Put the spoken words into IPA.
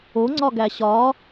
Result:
o ŋ͡ǀ ɒ ɡ æ ɕ ɒ

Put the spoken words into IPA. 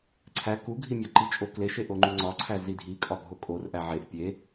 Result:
ǀʰ æ k u ɡʱ i mʲ ɒ ǃ i t͡ʃʼ o k l e ʃ e ʔ o ŋ͡ǃ u ŋ͡ǀ ɒ ǀʰ æ z i dʱ i kʼ ɒ bʱ o kʼ o r ʔ æ ʕ e ʔ pʲ e

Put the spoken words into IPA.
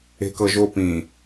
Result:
e̤ k ɤ ʒ o p ĩ

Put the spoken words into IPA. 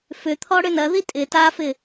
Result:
f ʏ t̪ʰ ɔ ɽ ʏ n ɐ ð i tʼ ɪ t a f ɪ

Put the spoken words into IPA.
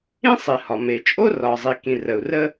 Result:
ĩ˥ sˤ i˩ h ɒ˩ m e˩ t͡ʃʼ o˥ r ɒ˩ zˤ i˩ k ĩ˩ r ə˩ u̯ r ə˥

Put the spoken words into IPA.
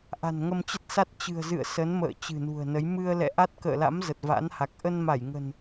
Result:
ʔ a̤˨˩ n ŋ ə˧ m t͡ɕ ə˦˥ t̚ s a˦˥ t̚ t͡ɕ ɨ̤˨˩ ə̯ z ɨ̰˧˨ ə̯ s ə˨˦ n m ə̰ː˧˨ t͡ɕ ɨ̤˨˩ n ṳ˨˩ ə̯ n ə˨˦ j m ɨ˧ ə̯ l ɛ̰˧˨ ʔ a˦˥ t̚ k ə̰ː˧˨ l a̰˧˥ m z ə˨˩ t̚ v a̰˧˥ n h a˨˩ k̚ ʔ ə˧ n m a˧˩ j ŋ ə̤˨˩ n

